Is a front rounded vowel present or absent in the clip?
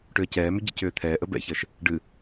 present